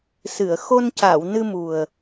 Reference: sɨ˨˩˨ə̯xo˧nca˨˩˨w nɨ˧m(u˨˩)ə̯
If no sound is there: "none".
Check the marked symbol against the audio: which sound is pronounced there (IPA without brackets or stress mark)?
u˨˩